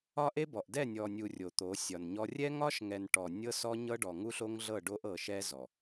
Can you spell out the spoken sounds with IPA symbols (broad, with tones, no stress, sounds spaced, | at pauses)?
ɒ˦ ʔ e˦ b ɔ˨ ʔ d ɛ˦˨ nʲ ɔ˨ nʲ u˨ rʲ o˨ t̪ o˨˦ sʲ ɒ˨ n ɲ ɔ˦ rʲ ɛ˦ ŋ ɒ˦ ʃ ŋ ɛ˨ n ʈ ɔ˨ nʲ ɤ˦ s ɔ˦ ɲ ɤ˦ ɖ ɔ˨ ŋ u˦ ɬ o˦ ŋ ɮ ɤ˦˨ ɖ o˦ ʔ ɤ˨ ʃ ɛ˦ z ɔ˨